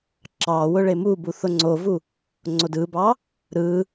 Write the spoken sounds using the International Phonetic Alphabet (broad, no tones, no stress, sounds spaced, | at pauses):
ǁ ɑ w ʊ ɭ e m u b u θ ʊ ŋ͡ǀ o v u | ŋ͡ǀ o d ɯ b ɑ | ɾ ɯ